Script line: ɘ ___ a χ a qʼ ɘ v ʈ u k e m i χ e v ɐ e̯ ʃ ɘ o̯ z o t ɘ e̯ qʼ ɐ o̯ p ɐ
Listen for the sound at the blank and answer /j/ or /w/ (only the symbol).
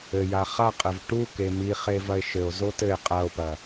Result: j